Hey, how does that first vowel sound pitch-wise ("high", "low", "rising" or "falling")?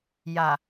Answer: low